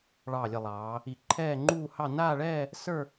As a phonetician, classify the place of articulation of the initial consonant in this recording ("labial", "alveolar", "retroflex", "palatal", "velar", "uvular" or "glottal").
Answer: retroflex